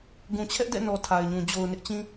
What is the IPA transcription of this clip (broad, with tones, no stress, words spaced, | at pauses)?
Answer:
ɡũ˨t͡ɕʰɛ˦ʔdɛ̰˦˨nɔ˨ tʰa˨ɪ̯ɲũ˨ d͡ʑo˨ʊ̯nɪ˦ʔt͡ɕĩ˦